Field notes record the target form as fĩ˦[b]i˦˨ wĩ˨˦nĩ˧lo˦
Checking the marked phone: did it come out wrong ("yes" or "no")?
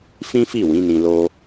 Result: yes